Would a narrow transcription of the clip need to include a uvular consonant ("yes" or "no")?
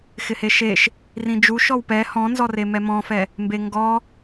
no